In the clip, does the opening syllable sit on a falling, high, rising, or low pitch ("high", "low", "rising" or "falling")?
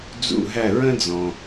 falling